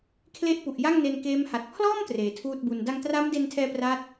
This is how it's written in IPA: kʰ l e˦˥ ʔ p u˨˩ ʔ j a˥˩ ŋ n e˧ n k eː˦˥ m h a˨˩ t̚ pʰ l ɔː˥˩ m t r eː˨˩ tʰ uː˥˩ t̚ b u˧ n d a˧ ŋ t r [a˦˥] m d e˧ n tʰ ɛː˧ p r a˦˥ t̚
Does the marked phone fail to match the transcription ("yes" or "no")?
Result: no